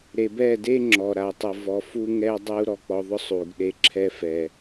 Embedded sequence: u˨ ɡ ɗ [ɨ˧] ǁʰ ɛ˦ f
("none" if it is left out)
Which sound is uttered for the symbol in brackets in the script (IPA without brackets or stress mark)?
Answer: e˧